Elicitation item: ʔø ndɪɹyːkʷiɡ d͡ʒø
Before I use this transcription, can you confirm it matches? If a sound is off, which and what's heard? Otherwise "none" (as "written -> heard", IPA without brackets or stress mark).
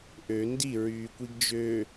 ɪ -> i